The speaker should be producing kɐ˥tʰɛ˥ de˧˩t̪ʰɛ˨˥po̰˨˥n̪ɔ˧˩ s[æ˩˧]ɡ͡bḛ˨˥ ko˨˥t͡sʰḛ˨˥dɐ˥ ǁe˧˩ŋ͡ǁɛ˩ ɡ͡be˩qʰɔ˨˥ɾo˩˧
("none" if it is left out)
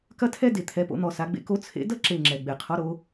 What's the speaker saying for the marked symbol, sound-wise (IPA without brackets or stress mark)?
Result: a˩˧